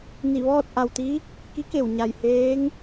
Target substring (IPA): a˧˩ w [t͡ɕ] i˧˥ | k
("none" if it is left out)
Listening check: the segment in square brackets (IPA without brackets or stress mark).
t̪